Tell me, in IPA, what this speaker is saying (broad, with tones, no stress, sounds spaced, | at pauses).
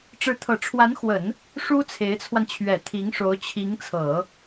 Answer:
ʈ͡ʂ ɻ̩˧˥ t̪ʰ ɤ˨˩ ʈ͡ʂʰ w a˧˥ n x w ə˨˩˦ n | ʂ u˥ t͡sʰ e˧˥ ɪ̯ t͡sʰ w a˧ n t͡ɕʰ ɥ ɛ˨˩ t̪ʰ i˧˥ ŋ ʂ o˧˥ ʊ̯ t͡ɕʰ i˧˥ ŋ t͡sʰ ɤ˨˩˦